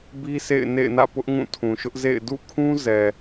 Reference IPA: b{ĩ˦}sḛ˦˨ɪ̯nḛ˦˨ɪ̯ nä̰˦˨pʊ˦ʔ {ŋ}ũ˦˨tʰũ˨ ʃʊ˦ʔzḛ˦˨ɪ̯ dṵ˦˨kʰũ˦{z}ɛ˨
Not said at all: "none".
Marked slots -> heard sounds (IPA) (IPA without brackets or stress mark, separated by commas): i˦, ŋ, z